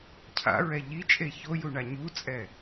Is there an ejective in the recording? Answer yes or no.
yes